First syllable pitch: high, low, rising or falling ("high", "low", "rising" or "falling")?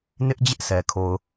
high